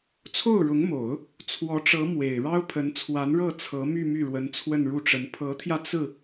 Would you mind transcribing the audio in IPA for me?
t͡sʰ o˥˩ ʊ̯ ɻ ʊ˧˥ ŋ m o˨˩˦ ʊ̯ | t͡sʰ w ɔ˧˥ ʈ͡ʂ ɤ˧˥ m w e˨˩ ɪ̯ ɻ ɑ˥ ʊ̯ pʰ ə˧˥ n t͡sʰ w a˧˥ n ɻ ɤ˥˩ t͡sʰ ɤ˧˥ m y˥˧ m y˥˩ ɻ w ə˧˥ n t͡sʰ w ə˥˧ n ɻ u˥˩ ʈ͡ʂ ə˧˥ n pʰ ɤ˧˥ t̪ʰ j ä˧ t͡s ɹ̩˥˩

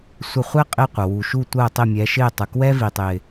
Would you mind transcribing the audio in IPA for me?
sʷ ə˦˨ χʷ ɛ˥ qʼ ɪ˦˨ qʷ ə˩ w u˩ ʃ u˦˨ tʷ əː˦˨ tˤ ɪ˦˨ mʲ ɛ˨˦ ʃ ɪː˦˨ tˤ ə˩ k w ɛ˥ v i˩ tˤ ɪː˩

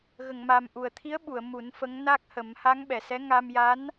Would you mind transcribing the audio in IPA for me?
ɣ ə˨˩˨ ŋ m a˨˩ m ʔ u˨˩ ə̯ t̪ʰ i˧˥ ə̯ ɓ u˨˩˨ ə̯ m u˨˩˦ n f ə˧˥ ŋ n a˦˥ k̚ h ə˨˩˦ m h a˧˥ ŋ ɓ ɛ˨˩ s ɛ˧˥ ŋ a˧ m j a˧˥ n

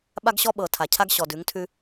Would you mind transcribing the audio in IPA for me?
ɓ a˦ ɡ ɕ ɔ˦ ɓ ɤ˨ tʰ a˨ cʰ a˦ ɡ ɕ ɔ˨ d ʉ˨˦ ŋ tʰ ʉ˦

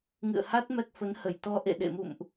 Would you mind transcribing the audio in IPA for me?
ŋ ɨ̰˧˨ ə̯ h a˦˥ t̚ m ɛ˦˥ k̚ f ə˨˦ n h ə˧˩ j t̪ ɔ˧ ʔ ḛ˧˨ ɗ ḛ˧˨ m ṵ˧˨ m ʔ

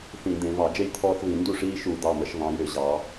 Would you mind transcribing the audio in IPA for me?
θ ĩ˧˩˧ d̪ ẽ˩˧ v ɑ˧˩˧ d͡ʒ e˦ j t̪ʰ ɔː˦ θ v ĩ˧˩˧ n d u˥˩ ʂ iː˦ ʃ u˧˩˧ d̪ ɑ˩˧˩ m ə˧˩˧ ʃ v ɑ̃˩˧ j ʏ˧˩˧ ʑ ɑ˩˧

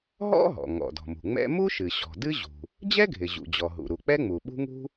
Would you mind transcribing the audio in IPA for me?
ɦ ɔ̰˥ ɦ ɔ̰˩ ŋ ɔ̰˩ d ɔ̤˩ m ṳ˩ ŋ͡m ɛ̰˥ m u˥ ʃ ɨ˩ ɕ ɔ̤˩ d ɨ˥ ʑ ṳ˩ | d͡ʑ ɛ˥ ɡʱ ɪ˩ ʑ ṵ˩ d͡ʑ ɔ˩ ɦ ṵ˩ ɾ u˩ k͡p ɛ˥ ŋ͡m u˩ ɓ ṳ˥ ŋ ṳ˥

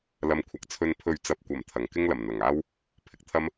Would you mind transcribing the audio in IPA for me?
l ɐ˨ m kʷʰ ɐ˨ k̚ t͡sʰ ɵ˨ n pʰ ɵ˨˧ ɥ t͡s ɐ˨ p̚ kʷ ɐ˨˩ m t̪ʰ ɐ˨˩ ŋ k ɪ˥ ŋ l ɐ˨˩ m n̪ ɐ˨˩ ŋ aː˥ w | pʰ ɪ˨ k̚ t̪ʰ ɐ˥ m

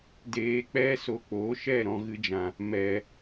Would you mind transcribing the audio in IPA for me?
d eː˧ k͡p ɛ˦ s o˧ k͡p oː˨˦ ʃ ɛ˦˨ ɾ ɔ̃˧ ɣ ɨ˧ d͡ʒ ã˨ | m ɛ˨

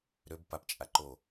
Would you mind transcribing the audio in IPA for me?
ɾ ø b p a p t͡ʃʼ a ǃ o

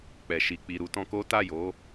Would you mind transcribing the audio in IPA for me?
k͡p ɛ˨ ʃ i˨ k͡p i˨ ɾ u˧ t ɔ̃˧ k o˦ t a˦˨ j o˨˦

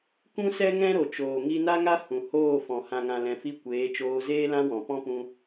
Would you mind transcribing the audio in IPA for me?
k ũ˦ s ɛ˦ ŋ ɛ̃˦ ɾ o˨ t͡ʃ oː˨ ŋ i˧ n a˦ ŋ a˦ h ũ˨ h oː˦˨ f ɔ̃˨ h ã˨ ŋ ã˨ l ɛ̃˨ f i˧ kʷ eː˨˦ t͡ʃ oː˧ z eː˦ l ã˦ w ɔ̃˨ p ɔ̃˦ p ũ˧

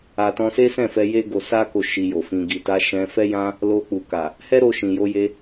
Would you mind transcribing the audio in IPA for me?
a˨ t ɔ̃˧ s e˦ s ɛ̃˦˨ f ɛ˧ j e˦ ɡ o˧ s a˦ k o˧ ʃ i˧ j o˨ f ĩ˧ ɡ i˨ t a˧ ʃ ɛ̃˧ f ɛ˦ j ã˦ | l o˧ k͡p u˨ k a˨ | h ɛ˦ ɾ o˧ ʃ ĩ˨ j o˧ j e˧

